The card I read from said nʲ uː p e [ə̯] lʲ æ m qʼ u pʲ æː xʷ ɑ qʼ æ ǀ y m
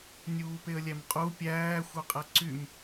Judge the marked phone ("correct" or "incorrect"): correct